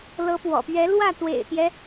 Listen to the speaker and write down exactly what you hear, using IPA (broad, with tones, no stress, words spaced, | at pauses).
lɤ˧˥pwɔ̰˨˩pɥɛ˧˥lwä˥˩ t̪wḛ˨˩ɪ̯t̪jɛ˦